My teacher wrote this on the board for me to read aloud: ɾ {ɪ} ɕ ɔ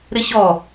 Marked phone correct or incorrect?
correct